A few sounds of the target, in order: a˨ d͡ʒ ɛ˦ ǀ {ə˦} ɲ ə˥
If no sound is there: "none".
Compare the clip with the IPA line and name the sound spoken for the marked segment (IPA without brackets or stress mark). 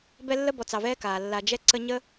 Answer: ə˦